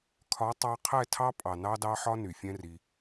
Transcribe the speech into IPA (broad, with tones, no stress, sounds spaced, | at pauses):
kʰ ɒ˨˦ tˤ ɑ˧ qʰ ɛ˦˨ tʰ ɑ˦ pʼ ɑ˨ n ɑ˦ d ɑ˦ ħ ɒ˦ n y˨ fʲ ɛ̃˦ r i˧